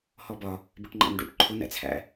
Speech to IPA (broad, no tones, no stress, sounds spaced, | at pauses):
h ɔ b ɒ | b ɪ ʈ ŋ͡ǃ æ̰ n ɖ ṵ ʈ ǃʰ ʊ n æ̰ t͡sʰ æ̰